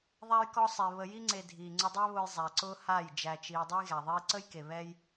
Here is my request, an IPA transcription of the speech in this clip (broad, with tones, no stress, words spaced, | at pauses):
ðˤæ˧jkɔ˧sˤe˨ βə˨ji˧ŋ͡ǀe˨ dʱiː˨ŋ͡ǀʊ˧dˤæ˦ βʊ˧jzˤæ˨ ǀʊː˦ha˦˨j d͡ʒæ˧t͡ʃiː˧ dˤʊ˦jɣæ˨ ðˤiː˧ǀə˦jke˨ βɛ˦j